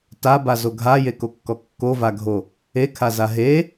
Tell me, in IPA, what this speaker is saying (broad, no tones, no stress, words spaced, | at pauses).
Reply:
tabazo ɡʱajekokːɔ kːovaɡʱo | ekʰaza ɦe